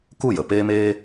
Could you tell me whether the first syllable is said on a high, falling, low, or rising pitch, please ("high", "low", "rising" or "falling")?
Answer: falling